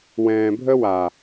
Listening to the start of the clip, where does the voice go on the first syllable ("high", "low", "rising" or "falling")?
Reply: low